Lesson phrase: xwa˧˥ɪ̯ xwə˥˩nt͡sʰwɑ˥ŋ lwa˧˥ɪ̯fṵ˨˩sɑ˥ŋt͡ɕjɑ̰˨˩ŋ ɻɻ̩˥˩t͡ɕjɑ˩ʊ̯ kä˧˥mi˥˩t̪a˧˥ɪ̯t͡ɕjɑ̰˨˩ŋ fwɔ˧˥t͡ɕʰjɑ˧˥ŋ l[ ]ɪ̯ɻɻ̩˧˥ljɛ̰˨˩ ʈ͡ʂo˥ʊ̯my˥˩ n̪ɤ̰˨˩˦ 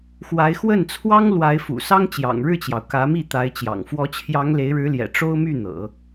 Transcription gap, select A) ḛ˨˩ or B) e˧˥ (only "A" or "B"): B